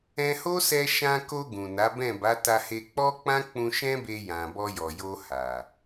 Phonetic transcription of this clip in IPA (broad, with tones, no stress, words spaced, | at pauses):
ɛ̃˧ho˦sɛ˧ ʃã˧ko˧ ɡũ˨na˨˦bɛ̃˦˨ ba˨˦ta˧he˧ k͡pɔ˦k͡pã˦ k͡pũ˧ʃɛ̃˦be˧ jã˨bɔ˧jɔ˨jo˧ ha˨